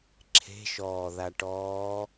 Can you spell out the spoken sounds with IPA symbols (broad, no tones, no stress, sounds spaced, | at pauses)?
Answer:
ǁʰ e̤ ʃ ɔː ð a ʈ ɔː